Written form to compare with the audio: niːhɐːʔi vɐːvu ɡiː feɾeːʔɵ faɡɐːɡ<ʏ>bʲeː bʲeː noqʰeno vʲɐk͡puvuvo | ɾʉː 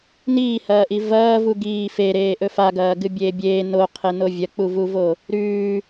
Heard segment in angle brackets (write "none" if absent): ɨ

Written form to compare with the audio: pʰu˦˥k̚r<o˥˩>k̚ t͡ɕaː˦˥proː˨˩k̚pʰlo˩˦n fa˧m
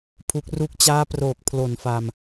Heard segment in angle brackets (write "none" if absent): u˥˩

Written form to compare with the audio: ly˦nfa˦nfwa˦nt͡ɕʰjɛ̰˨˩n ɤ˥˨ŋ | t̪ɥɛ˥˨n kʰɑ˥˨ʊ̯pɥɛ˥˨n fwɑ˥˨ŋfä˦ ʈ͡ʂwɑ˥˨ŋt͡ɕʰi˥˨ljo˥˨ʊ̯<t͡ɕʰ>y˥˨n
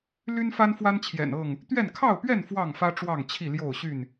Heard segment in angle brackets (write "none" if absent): ɕ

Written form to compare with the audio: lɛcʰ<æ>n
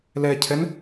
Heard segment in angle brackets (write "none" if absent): ɛ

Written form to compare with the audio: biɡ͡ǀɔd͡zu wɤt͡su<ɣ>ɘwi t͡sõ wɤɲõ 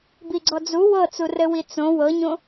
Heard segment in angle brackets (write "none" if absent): r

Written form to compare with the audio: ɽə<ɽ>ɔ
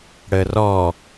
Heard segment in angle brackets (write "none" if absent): r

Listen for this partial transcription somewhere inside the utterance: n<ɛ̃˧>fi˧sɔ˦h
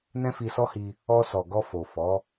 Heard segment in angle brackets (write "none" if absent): ɛ̃˦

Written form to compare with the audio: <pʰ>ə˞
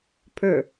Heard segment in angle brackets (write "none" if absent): pʰ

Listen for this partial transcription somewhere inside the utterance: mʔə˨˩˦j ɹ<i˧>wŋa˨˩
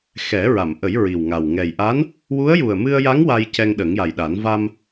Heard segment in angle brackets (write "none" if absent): i˨˩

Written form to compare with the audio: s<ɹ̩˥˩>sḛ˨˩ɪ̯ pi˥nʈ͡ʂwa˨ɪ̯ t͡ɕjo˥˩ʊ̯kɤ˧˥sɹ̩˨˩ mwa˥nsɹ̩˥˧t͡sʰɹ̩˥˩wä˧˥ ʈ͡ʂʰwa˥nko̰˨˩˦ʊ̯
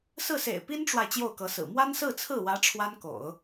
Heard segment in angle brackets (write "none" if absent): ɹ̩˥˩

